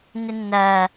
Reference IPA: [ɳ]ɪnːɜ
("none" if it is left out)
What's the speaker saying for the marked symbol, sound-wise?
n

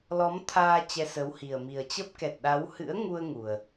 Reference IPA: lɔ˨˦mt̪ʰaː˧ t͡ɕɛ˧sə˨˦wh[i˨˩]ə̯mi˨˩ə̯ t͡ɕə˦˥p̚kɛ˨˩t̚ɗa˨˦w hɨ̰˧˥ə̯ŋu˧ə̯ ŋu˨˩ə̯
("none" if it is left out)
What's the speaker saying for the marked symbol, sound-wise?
i˨˩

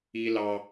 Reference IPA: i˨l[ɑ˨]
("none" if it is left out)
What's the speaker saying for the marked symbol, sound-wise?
ɑ˨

